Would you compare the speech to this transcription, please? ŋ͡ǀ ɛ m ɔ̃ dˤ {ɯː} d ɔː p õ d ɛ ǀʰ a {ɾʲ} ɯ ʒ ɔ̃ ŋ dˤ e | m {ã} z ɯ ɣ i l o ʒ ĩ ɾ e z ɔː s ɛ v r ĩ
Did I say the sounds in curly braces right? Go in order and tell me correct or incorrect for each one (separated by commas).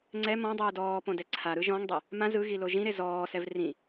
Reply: correct, incorrect, correct